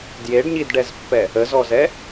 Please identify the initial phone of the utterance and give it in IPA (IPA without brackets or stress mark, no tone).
d